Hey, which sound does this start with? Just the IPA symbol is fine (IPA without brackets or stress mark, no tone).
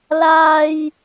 l